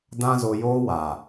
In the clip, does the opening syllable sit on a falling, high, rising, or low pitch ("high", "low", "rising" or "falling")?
high